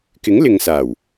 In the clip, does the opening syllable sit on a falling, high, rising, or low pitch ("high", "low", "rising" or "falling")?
rising